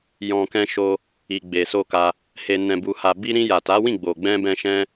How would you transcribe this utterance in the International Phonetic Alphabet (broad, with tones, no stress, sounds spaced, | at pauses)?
j ɔ̃˨ k ɛ̃˧ ʃ o˧ | i˨ ɡ͡b e˨ s o˧ k a˧ | h e˨ n ɛ̃˨ b u˨ h a˨ b i˧ ɾ ĩ˧ j a˨ t a˨˦ w ĩ˦˨ ɡ͡b o˨ ɡ͡b ɛ̃˧ b ɛ̃˧ ʃ ɛ̃˦